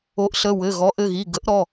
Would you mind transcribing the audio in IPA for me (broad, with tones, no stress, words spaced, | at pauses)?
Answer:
o˩˥ʔɬə˩˧˩ wɘ˩˧˩ ɣɔ˩˥ʔɘ˩˧˩ɣi˩˧˩ ɡə˩˥ʔɾɔ˩˧˩